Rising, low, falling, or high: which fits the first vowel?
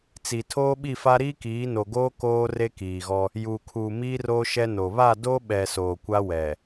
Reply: low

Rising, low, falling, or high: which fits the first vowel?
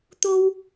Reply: high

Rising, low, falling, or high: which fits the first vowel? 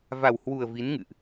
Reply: low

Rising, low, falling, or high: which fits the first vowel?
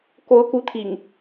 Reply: rising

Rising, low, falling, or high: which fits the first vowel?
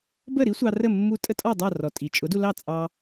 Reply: falling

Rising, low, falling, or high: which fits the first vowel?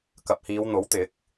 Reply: low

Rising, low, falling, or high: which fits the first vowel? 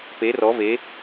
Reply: rising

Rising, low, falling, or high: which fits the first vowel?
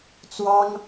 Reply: high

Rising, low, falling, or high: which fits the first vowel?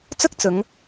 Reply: high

